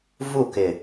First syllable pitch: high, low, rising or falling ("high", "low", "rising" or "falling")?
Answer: falling